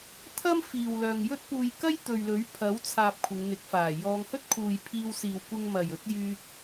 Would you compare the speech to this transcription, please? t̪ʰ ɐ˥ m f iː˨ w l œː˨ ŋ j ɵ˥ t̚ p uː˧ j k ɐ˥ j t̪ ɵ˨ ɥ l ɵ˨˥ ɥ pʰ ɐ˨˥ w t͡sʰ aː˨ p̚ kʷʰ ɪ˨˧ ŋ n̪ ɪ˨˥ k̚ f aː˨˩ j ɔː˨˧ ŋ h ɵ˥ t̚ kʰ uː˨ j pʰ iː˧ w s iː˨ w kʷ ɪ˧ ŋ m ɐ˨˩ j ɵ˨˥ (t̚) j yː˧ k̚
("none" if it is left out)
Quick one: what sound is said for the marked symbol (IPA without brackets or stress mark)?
t̚